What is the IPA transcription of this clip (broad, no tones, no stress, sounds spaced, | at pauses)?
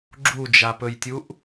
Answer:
ɡ͡ǁ u d͡ʒ a p ɵ j tʲ u ʔ